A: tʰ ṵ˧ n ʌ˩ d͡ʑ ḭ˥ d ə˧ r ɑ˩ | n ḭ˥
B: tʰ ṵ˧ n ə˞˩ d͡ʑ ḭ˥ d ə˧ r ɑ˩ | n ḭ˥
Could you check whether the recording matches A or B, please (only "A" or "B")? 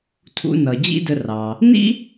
A